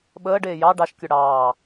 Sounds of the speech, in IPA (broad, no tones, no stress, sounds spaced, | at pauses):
ɓ əː ɖ eː j ɑ ɖ ɑ ʃ kʲ œ ɽ ɑː